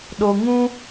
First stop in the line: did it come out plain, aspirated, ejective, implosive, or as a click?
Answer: implosive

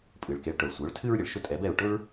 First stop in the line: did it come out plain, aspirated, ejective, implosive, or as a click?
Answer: ejective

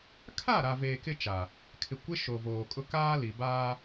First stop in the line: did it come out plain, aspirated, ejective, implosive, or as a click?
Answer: aspirated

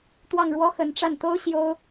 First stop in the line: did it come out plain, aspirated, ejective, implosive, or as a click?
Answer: plain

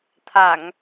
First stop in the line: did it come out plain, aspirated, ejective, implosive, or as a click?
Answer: aspirated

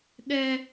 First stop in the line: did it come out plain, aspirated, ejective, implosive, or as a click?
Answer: implosive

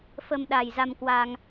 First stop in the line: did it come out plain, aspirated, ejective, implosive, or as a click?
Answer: implosive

